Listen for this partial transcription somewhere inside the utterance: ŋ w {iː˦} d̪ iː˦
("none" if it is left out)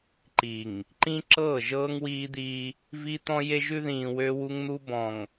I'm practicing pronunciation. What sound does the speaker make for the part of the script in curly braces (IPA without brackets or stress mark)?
iː˦